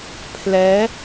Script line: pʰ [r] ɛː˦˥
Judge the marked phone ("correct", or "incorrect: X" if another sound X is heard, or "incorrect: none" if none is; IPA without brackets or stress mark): incorrect: l